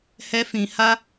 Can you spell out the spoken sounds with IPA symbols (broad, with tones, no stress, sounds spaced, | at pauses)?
h ɛ˧ f ĩ˨ h a˧